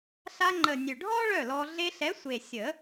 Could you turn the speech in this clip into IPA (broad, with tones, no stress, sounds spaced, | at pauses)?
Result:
ɬ a˧ ŋ͡ǃ ə˨˩ nʲ ø˨˩ ɖʱ ɔː˥ ɭ œ˥˩ l ɔː˧ ɮ e˧ ɬ ɛ˨˥ sʷ e˨˩ sʲ ə˨˩˦